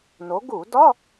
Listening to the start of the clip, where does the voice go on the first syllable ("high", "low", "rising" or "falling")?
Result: rising